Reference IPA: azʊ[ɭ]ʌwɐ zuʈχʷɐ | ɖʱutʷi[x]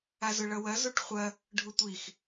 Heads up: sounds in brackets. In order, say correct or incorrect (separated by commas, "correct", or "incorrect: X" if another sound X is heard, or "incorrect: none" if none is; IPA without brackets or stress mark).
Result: correct, correct